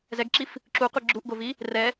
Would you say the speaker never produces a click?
no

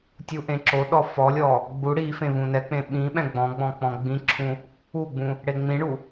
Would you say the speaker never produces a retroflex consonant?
no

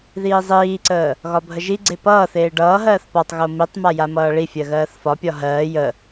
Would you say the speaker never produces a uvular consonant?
yes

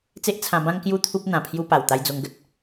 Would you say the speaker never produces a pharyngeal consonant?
yes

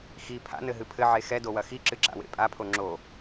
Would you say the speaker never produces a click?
no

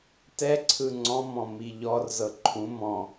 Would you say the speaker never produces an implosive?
yes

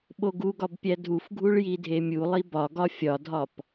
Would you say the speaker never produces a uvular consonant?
yes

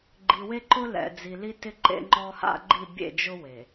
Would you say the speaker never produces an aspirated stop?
yes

